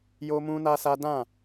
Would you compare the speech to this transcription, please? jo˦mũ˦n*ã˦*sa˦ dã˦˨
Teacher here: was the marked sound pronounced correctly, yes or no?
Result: no